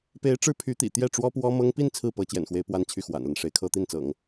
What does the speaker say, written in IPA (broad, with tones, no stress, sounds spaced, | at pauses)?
p e˧˥ ɪ̯ ʈ͡ʂ ɻ̩˥ pʰ y˧˥ t̪ ḭ˨˩ t̪ j ɛ˥˩ ʈ͡ʂ w ɔ˥ p w ɔ˥ m ɤ˥ ŋ p i˥˧ n t͡sʰ ɹ̩˥˩ p ɤ˧˥ t͡ɕ j ɛ̰˨˩ n x w e˧˥ ɪ̯ p w a˥˧ n t͡ɕʰ y˥˩ x w a̰˨˩ n l ə˦ n ʂ e˧˥ ɪ̯ kʰ ɤ˥ t̪ i˥˩ n t͡s ɤ̰˨˩˦ ŋ